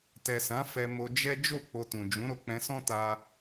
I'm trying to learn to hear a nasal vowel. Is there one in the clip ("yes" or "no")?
yes